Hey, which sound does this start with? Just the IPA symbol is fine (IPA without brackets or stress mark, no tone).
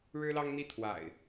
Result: ɻ